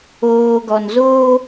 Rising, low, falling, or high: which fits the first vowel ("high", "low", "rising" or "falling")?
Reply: low